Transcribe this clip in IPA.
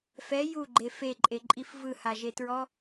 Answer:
f ɛ j u ɡ͡ǃ e f e ǃʼ e ǃʼ i f v ɯ h a ʒ e t ɹ ɔ

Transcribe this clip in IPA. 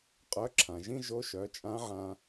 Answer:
qʼ œ˧˥ ǁʰ ã˩ ʒ ĩ˥ ʒ o˧˥ ʃ œ˩˧ t͡ʃʼ ã˧˥ ʕ ã˧

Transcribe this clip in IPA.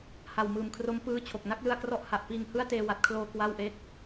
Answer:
h a˨˩ w m ɯː˨˩ m kʰ r o˦˥ m p ɯː˦˥ t͡ɕʰ o˨˩ k̚ n a˥˩ k̚ l ɯ˧ a̯ k r ɔ˦˥ ʔ h a˨˩ ʔ p iː˧ ŋ h ɯ˥˩ a̯ t eː˧ w a˨˩ t̚ kʰ l oː˧ k w a˥˩ w ʔ e˥˩ k̚

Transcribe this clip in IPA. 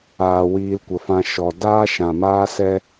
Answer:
aː˨ w iː˧ l kʷ ə˨ f ã˧ ʃ ɔ˨ d aː˦ ʃ ã˨ m aː˦ s ɛ˦

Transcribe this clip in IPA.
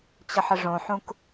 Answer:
t͡ɕ ə ħ ə ʐ õ ħ ũ k

